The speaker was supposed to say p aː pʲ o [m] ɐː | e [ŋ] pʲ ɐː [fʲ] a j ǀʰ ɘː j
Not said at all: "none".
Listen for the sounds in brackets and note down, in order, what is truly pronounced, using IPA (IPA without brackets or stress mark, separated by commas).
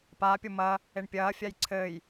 m, ɳ, fʲ